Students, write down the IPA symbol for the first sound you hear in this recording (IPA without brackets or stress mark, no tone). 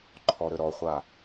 ǃʰ